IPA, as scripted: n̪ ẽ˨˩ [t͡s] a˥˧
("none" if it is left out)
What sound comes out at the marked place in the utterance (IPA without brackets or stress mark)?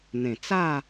t͡s